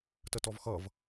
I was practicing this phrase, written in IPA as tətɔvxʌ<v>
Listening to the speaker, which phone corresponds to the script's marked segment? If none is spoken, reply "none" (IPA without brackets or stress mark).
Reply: v